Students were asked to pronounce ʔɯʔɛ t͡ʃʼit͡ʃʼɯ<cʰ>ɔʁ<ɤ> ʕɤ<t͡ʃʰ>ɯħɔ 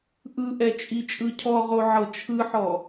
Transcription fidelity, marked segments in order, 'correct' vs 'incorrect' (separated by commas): correct, incorrect, correct